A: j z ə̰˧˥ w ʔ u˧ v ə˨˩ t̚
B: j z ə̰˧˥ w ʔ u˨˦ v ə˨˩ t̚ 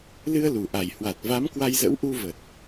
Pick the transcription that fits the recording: A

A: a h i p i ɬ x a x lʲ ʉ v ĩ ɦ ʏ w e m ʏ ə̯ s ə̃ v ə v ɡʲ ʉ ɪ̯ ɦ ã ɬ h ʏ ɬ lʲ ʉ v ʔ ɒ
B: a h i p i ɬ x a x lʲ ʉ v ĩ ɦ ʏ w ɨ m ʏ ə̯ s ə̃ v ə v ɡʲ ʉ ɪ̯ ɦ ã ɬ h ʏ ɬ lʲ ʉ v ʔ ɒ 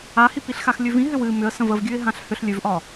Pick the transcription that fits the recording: B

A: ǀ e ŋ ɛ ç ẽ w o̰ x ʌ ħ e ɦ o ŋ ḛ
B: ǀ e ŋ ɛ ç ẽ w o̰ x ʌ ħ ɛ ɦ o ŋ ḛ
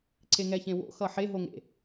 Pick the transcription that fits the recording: A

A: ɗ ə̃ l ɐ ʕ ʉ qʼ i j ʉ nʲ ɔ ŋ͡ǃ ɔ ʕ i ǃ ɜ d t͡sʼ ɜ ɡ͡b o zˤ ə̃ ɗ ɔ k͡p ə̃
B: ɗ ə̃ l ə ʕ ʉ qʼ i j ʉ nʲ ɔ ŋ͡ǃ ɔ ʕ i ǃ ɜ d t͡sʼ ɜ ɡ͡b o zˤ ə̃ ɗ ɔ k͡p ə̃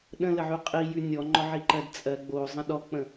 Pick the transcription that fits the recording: B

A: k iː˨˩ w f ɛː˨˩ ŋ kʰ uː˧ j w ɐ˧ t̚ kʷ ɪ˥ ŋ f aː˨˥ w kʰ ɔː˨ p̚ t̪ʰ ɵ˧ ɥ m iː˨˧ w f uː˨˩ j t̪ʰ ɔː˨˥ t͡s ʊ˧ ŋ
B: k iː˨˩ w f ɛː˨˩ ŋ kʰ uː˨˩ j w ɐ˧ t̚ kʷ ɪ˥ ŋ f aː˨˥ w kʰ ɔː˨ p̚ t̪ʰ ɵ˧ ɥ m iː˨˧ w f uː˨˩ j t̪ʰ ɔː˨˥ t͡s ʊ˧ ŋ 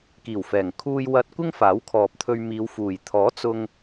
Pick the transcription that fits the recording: A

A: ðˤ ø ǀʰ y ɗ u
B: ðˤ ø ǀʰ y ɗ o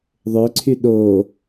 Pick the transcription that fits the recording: B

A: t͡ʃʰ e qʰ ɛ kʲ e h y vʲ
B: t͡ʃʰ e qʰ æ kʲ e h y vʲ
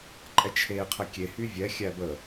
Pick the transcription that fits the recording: A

